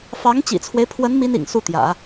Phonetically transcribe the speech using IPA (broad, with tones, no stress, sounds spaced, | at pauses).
f ɑ˧˥ ŋ t͡ɕ ḭ˨˩ t͡sʰ w e˦ ɪ̯ pʰ w ə˧˥ n m i˥ n ḭ˨˩ ŋ s u˥˩ t̪ j ä̰˨˩˦